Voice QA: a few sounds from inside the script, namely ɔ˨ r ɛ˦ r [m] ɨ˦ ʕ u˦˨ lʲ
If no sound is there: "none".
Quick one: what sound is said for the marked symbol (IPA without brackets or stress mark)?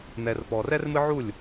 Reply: m